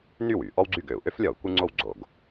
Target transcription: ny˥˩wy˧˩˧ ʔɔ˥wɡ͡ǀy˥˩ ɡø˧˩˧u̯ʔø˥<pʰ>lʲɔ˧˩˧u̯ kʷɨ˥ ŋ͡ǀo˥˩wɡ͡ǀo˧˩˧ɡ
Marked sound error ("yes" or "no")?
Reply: yes